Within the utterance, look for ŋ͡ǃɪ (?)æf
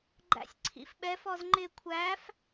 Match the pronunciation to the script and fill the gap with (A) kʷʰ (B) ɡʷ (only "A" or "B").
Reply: A